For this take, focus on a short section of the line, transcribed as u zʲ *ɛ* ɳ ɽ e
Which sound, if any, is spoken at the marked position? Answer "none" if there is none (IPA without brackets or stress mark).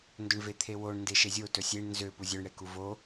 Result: ø